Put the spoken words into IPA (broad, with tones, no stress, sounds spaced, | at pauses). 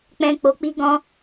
k͡p ɛ̃˦ k͡p o˧ k͡p i˦ ɡ ɔ̃˦